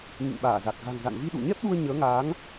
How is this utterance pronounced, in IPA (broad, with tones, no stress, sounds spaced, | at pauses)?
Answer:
ŋ ḭ˧˨ ŋ ɓ aː˧˩ z a˨˩ k̚ ɣ a̤˨˩ ŋ z a̰˧˨ n v i˧ ɗ ṵ˧˨ ɲ ɛ˦˥ p̚ ɗ u˧ ə̯ ɲ əː˨˦ ŋ aː˨˦ ŋ